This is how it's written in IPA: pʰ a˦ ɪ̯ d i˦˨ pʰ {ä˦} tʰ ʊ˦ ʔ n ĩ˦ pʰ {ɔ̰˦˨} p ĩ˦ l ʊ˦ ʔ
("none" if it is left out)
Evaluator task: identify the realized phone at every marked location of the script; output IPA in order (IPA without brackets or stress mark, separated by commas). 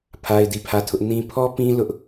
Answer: ä˦˨, ɔ˦